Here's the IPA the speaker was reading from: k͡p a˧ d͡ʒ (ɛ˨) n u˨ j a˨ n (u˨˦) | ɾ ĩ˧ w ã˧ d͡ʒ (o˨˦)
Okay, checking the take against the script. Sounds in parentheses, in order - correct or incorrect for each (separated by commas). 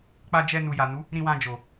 incorrect, correct, incorrect